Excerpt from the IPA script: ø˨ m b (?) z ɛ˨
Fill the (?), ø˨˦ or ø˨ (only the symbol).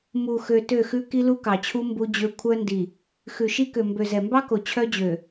ø˨